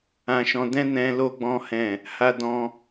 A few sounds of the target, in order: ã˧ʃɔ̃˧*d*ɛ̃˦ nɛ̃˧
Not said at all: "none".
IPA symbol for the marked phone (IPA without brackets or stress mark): d